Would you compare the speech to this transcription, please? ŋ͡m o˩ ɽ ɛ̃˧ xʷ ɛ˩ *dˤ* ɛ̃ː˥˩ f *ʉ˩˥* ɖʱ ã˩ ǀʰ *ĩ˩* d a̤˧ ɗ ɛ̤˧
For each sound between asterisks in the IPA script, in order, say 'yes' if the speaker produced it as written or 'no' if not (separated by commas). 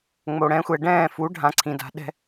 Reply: no, no, yes